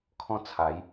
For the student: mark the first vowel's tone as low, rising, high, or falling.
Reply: falling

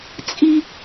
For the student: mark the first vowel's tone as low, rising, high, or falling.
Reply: high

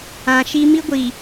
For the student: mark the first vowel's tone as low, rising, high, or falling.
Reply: low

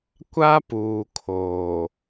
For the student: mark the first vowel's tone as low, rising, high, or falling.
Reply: high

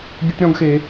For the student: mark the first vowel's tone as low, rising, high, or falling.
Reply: high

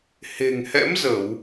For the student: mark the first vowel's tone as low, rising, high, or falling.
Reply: low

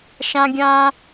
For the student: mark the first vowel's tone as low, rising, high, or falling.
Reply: high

